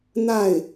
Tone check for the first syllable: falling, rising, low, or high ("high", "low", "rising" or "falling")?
falling